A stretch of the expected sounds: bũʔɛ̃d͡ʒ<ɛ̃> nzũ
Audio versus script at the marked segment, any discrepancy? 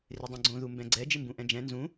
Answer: no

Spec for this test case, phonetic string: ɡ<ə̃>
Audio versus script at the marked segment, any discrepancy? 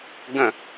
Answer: no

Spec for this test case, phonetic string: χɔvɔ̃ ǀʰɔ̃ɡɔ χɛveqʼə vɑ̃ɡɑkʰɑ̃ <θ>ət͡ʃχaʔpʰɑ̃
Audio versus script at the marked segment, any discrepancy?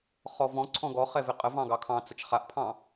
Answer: yes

